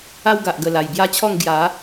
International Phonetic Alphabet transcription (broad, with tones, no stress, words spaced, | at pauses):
a˦wɡa˨ʔɡə˨˩ la˨˩jbja˥˧t͡ɕʰɔ˥˧ŋ ɡja˨˦